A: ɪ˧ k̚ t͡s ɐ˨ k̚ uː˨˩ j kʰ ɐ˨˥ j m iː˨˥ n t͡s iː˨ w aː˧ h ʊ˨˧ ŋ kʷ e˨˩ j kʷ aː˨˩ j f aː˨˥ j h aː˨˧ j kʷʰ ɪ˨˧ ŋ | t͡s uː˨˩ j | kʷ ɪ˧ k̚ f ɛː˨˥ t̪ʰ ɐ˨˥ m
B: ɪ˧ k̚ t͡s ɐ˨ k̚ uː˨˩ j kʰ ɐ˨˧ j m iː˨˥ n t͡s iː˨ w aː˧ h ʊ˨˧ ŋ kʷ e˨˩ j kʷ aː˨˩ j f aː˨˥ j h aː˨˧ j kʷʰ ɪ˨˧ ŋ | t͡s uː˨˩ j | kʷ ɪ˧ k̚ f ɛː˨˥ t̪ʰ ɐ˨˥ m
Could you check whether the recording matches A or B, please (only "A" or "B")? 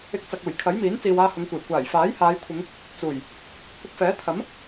A